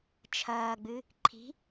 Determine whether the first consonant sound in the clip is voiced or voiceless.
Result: voiceless